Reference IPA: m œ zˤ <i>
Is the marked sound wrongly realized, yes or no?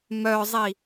no